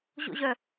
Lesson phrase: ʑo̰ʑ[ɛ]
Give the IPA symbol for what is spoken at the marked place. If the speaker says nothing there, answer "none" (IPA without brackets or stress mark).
œ